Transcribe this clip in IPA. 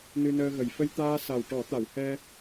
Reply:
nɨ˧nəː˧ɣə˨˩j fə˧jt̪aː˧ sa˨˩wʈɔ˨˩˦t̪a˨˩˨whɛ˧

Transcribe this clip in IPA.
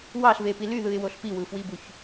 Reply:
wɑɬvepi lyðɯɪ̯woɬ piwɯfwibuç

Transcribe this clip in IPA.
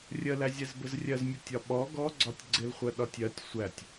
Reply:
rʲəlæzʲɛz bəzrʲɜzmʲʊtʲ ɒɓɔ ɡɔ ɡ͡ǀɒtʲɡ͡ǀɪlχʷɜ ɗɒtʲɜtʲ sʷætʲ

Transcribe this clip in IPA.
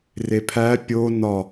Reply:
repʰæ pʲo nɒ

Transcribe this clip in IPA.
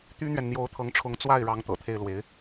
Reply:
t̪y˥n̪ɥɛ˨nn̪jo˧˥ʊ̯ t̪ʰɤ˧˥ŋʈ͡ʂʰʊ˧˥ŋ t͡swa˥˩ɪ̯ɻɑ˧˥ŋ t̪ɤ̰˨˩t̪ʰe˥˩ɪ̯lwe˧˥ɪ̯

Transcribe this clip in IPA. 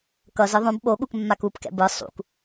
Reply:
kʌzɯ ðˤõb ɓo ɠukmːakupkɛ̰ bɯ sˤṵk

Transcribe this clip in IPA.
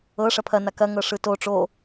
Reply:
ɤ ʂɐpʰɐna kɐŋɤ ʂɯto ʈ͡ʂo

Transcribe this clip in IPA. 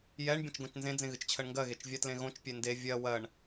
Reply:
jɛɳ bʲẽt͡ʃɡõt͡ʃnzẽ d͡zẽɣɨt͡ʃt͡ɕʰɜɳŋɡɜ ɣet͡ʃvʲatlẽɣõt͡ʃ pʲende vʲɜ wɜɳ

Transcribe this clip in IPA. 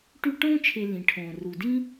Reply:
ʈy˦ʈõː˥t͡ʃʰe˨ lĩ˩ʈʰõː˩ ru˩dĩ˦

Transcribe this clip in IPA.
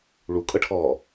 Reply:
ɭukʼɤʈʰɔː

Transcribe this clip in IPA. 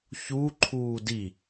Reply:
çu ǃʰuːdi

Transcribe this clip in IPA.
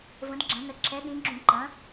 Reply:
və̃˨˦dɡ͡ǁɐ̃˨˦nə˨˦ ǁʰɛ˨˦ɗĩ˨˦ɡ͡ǁũ˧˩˧ ǃɐ̃˨˦

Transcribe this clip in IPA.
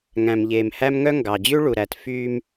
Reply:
ŋæ̃˨mʎeː˨mhæ˦mŋœ˦ ŋɡɑ˨d͡ʑʉ˦ ɭu˨ɾæ˨t fyː˦m

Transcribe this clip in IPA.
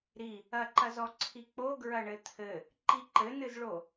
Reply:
ɾi | ɐǃɐzɔ ǀʰik͡po ɡɹɐɳɘt̪ʰɘ | ǃiǃɘnɨzɭo

